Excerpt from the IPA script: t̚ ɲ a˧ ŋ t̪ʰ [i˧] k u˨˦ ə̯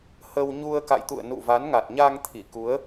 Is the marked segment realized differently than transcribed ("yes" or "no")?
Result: yes